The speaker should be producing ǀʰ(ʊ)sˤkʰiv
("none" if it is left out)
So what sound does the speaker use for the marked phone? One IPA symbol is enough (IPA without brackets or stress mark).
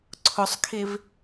ʊ